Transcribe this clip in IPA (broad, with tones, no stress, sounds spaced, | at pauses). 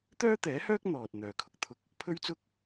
t̪ œː˥ t̪ ɛː˨˥ h œː˥ k̚ n̪ ɔː˨ t̚ n̪ œː˨ kʰ ʊ˨ k̚ t̪ʰ ʊ˧ k̚ | pʰ ɵ˥ ɥ t͡s ʊ˥ k̚